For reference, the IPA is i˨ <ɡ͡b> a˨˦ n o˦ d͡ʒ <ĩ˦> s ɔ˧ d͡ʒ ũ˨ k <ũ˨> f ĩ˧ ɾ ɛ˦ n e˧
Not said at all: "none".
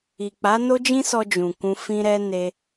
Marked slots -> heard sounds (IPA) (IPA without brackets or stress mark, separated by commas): k͡p, ĩ˦, ũ˧